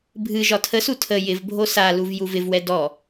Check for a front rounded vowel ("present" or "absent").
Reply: absent